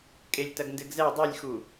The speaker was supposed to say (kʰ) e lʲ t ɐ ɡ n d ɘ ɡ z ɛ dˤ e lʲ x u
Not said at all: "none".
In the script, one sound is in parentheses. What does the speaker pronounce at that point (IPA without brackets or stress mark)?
kʼ